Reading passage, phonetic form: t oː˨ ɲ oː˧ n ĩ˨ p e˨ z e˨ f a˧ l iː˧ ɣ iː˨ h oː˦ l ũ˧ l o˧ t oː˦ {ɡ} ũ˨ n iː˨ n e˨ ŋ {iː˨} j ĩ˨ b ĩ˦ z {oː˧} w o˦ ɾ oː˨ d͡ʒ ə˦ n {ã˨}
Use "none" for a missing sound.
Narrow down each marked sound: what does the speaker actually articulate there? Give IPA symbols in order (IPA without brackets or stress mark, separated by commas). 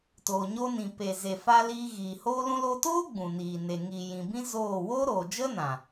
ɡ͡b, iː˨, oː˦˨, ã˨